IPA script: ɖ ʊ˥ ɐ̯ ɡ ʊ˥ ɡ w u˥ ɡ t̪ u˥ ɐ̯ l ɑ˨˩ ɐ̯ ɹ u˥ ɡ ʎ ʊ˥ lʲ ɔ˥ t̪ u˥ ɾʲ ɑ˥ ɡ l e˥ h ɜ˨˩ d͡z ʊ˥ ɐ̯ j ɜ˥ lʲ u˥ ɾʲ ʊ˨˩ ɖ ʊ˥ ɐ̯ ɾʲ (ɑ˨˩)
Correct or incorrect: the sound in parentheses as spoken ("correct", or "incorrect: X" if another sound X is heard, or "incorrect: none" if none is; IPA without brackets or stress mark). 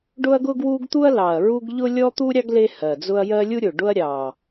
correct